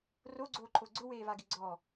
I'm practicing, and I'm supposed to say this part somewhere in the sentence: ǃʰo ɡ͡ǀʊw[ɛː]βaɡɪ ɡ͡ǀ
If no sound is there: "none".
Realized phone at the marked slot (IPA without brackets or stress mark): eː